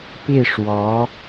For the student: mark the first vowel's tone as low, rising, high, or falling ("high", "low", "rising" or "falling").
falling